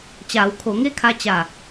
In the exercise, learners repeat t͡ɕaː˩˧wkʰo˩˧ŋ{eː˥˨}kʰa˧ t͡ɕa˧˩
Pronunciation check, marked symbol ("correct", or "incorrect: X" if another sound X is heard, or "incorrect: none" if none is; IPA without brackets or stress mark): incorrect: e˥˨